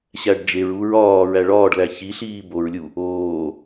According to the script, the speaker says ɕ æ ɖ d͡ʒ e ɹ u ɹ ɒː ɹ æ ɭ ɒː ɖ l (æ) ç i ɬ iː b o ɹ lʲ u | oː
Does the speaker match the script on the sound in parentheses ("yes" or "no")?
yes